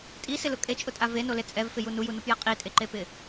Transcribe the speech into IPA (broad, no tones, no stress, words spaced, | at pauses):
tʼisɪlʊ kʼet͡ʃʼʊtʼa venole t͡sʼɛvfɪju nujunupjɛ qʼitʼeǃepɪ